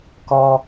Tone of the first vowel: high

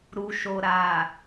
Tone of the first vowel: low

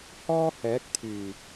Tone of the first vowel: high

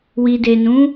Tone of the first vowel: low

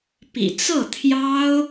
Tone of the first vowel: low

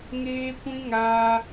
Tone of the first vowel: high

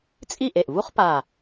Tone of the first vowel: falling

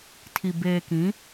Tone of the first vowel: low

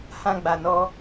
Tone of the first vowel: high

